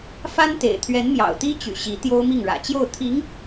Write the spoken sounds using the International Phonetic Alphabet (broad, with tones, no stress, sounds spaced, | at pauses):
f a˥ n t̪ ḛ˨˩ ɪ̯ t̪ʰ ɥ ɛ˧˥ n m j ɑ̰˨˩ ʊ̯ t̪ i˥ t͡ɕ y̰˨˩ ɕ i˧˥ t̪ j o˥ ʊ̯ m i˥˩ ŋ ɻ ä̰˨˩ t͡ɕ j o˥˩ ʊ̯ t̪ʰ i˧˥ ŋ